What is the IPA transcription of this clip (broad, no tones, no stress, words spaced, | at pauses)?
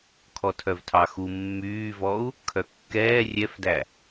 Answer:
kʰɔtʰœvtʰɑxu mːyːvɔu̯ | kʰœkːɛː rʲɛfdæ